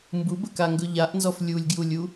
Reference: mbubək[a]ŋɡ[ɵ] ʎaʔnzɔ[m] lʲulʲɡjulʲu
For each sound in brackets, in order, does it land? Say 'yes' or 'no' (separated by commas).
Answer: yes, yes, no